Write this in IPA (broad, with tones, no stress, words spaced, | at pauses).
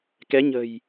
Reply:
kɛ˨˦ɲə̤˨˩j